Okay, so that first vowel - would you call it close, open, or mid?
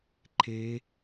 mid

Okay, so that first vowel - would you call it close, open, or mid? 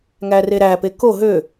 open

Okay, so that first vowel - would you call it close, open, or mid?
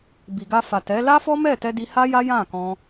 close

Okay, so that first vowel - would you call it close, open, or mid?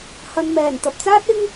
open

